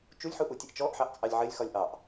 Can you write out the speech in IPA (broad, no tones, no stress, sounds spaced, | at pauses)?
t͡ʃ u lʲ ħ u ʔ u tʲ ɘ ʔ t͡ʃ ɔ ʔ ħ ɑ ʔ t͡sʼ ɑ lʲ ʕ ɘ lʲ x ɒ lʲ ʔ ɑ ʔ